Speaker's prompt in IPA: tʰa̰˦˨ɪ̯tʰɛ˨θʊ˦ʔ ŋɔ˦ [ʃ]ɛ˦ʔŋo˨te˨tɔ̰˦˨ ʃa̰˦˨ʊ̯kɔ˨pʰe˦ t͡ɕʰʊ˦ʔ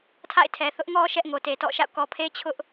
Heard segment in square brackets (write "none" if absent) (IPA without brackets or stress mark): ʃ